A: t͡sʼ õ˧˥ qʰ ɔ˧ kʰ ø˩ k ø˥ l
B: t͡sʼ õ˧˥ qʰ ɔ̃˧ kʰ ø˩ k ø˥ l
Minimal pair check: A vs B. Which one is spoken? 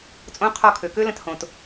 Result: A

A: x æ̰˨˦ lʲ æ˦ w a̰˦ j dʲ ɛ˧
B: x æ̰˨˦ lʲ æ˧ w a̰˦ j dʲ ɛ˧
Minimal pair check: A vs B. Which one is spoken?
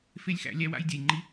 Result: A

